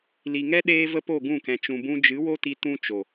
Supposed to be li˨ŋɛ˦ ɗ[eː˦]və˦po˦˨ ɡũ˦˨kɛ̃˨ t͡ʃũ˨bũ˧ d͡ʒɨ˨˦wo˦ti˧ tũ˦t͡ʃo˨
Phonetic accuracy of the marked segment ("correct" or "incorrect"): correct